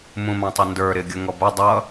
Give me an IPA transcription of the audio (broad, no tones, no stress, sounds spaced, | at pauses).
m ũ m ɑ̃ tˤ ɪ n d ə˞ ɾ ɪ ɡʲ ə ŋ ɔ b ə dˤ ʌ